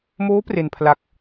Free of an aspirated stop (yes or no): no